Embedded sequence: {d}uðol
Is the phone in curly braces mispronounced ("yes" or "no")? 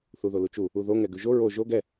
yes